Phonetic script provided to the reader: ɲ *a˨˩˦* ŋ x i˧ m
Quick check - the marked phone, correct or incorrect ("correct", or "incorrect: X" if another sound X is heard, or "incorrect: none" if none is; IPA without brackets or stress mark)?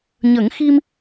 incorrect: ə˨˩˦